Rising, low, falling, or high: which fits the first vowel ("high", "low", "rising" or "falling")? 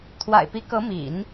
low